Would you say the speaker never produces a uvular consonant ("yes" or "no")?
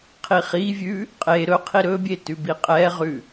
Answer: no